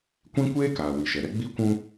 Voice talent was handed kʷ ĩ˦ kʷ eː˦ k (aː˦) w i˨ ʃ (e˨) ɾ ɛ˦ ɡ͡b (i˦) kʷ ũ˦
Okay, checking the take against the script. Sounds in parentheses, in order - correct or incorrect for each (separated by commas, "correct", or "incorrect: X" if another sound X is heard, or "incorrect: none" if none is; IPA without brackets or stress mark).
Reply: incorrect: aː˨, incorrect: ɛ˨, correct